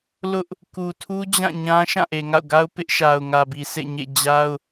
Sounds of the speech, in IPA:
l ʊ˦ ʔ | k u˨ tʰ u˦ d͡ʑ ã˦˨ ɲ ã˦ ʃ ã˦˨ ʔ e˨ ŋ a̰˦˨ ʊ̯ ɡ a˦ ʊ̯ p ɪ˦ ʔ ʃ a˨ ʊ̯ ŋ ä˨ b i˨ sʰ ḛ˦˨ ɲ ḛ˦˨ d͡ʑ a˦ ʊ̯

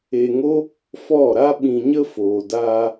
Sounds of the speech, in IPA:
e˧ ŋ o˦ | f ɔ˦˨ ɾ a˦ ɓ ĩ˧ ɲ ə˦ f oː˨ d aː˧

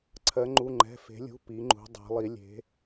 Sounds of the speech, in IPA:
ǀʰ ɜ˩˧ ŋ͡ǃ u˩˧˩ ŋ͡ǃ ɛ̤˩˧˩ f e̤˩˧ lʲ ṳ˩˧˩ p i˩˧ ŋ͡ǃ ṳ˩˧ dˤ ɛ̤˩˧ lˠ i˩˧ lʲ e̤˩˧

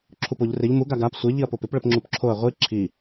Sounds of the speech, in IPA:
ǁʰ u p o ʎ r ɪ ʎ m u ɡ a ɡ a p sʷ ɪ ʎ i ɐ̯ p o p ɪ p ɭ ə p ŋ͡ǁ u p ǁʰ o ɐ̯ ʁʷ i ǁʰ i

